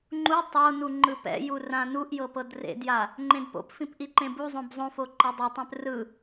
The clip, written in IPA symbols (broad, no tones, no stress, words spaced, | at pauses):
ŋ͡ǃu tˤonu ŋ͡ǃɯpɛ̰ju rãnuʔjɤ pɤdrḛdja | ŋ͡ǃẽdpo̰pfĩp ʔiǃẽbuzˤõb zˤõfo ǃɤdˤitˤɛ̃p rɯ